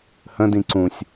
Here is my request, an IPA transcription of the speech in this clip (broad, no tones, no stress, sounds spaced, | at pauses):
h ə̃ d ĩ ǀ ũ sʲ